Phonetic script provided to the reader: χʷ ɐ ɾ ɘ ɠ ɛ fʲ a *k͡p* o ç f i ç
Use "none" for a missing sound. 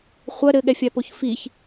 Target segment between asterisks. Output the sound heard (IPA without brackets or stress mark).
p